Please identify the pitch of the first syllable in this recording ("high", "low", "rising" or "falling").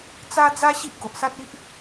high